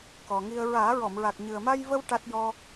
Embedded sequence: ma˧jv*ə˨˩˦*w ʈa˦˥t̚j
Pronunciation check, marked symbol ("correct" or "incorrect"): incorrect